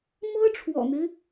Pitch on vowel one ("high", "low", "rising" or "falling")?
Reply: high